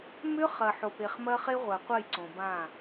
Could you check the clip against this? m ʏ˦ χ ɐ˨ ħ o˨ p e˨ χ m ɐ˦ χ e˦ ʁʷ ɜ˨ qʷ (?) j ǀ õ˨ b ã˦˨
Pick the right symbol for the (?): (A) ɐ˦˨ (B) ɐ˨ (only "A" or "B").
A